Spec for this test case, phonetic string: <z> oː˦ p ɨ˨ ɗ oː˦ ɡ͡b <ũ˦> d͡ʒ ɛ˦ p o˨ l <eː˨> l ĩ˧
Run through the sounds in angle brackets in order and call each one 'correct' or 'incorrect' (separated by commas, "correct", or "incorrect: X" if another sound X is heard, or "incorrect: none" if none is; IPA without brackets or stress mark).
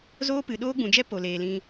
correct, incorrect: ũ˨, correct